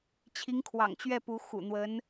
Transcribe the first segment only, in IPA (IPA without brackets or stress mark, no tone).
t͡ɕʰ